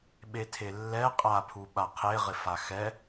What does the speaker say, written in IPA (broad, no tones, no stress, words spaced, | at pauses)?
ɓetʰelːɛ qʼapʰuɓa qʰeʁɪfa xɛ